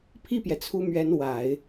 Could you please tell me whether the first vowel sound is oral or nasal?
oral